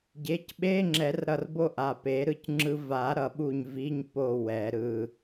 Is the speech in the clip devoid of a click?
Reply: no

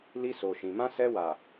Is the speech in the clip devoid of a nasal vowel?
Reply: no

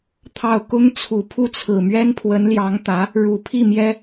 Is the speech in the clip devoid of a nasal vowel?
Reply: yes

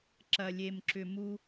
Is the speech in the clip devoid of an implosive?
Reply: yes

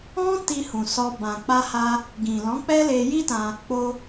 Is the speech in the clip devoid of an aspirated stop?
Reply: yes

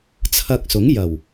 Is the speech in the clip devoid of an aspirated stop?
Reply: no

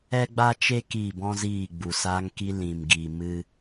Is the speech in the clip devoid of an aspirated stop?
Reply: yes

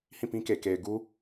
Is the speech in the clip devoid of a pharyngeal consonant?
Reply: yes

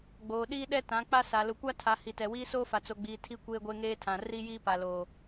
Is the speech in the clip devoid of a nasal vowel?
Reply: no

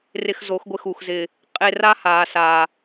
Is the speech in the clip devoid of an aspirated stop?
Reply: yes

